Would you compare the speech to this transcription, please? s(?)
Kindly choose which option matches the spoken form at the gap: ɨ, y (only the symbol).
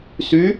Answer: y